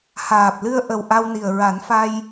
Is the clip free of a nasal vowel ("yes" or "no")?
yes